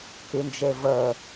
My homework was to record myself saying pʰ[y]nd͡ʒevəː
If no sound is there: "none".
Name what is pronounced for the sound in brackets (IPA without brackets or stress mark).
y